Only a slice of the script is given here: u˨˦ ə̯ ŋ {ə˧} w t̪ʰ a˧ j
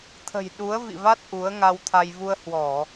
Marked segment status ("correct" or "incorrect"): incorrect